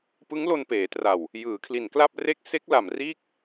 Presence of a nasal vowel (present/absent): absent